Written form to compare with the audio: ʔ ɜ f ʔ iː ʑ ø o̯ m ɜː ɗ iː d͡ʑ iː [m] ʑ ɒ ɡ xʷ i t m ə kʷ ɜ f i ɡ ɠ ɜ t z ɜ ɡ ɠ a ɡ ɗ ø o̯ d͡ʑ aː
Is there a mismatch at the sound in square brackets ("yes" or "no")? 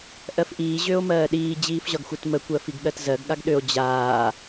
yes